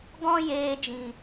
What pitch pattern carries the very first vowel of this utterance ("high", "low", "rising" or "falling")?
high